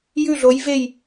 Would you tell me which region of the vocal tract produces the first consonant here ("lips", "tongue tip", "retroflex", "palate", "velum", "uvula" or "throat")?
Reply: palate